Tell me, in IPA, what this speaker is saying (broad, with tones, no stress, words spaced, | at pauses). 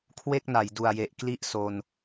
kʰwe˥˩k̚na˩˦j du˨˩a̯je˨˩ʔkli˥˩ʔ so˧n